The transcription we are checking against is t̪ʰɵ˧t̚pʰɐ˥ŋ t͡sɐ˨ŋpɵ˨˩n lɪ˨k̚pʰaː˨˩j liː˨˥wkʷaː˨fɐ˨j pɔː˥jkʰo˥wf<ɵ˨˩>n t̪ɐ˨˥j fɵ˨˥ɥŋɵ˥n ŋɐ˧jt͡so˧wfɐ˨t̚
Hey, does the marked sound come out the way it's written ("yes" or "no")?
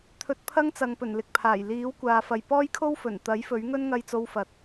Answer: yes